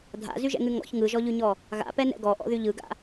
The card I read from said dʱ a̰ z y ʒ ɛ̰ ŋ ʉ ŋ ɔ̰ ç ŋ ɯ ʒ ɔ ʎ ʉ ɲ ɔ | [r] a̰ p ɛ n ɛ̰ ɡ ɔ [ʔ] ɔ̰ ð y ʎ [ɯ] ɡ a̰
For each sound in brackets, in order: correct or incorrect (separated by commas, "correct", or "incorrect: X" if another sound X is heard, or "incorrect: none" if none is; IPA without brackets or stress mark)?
incorrect: ɣ, correct, correct